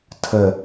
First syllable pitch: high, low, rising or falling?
low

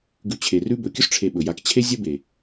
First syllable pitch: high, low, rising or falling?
low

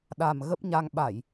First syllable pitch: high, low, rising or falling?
low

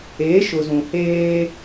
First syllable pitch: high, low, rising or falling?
rising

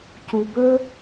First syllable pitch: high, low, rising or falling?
low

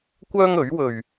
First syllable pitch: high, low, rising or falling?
high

